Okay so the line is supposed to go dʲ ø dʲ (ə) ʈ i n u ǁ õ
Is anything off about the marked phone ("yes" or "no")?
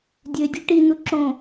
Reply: yes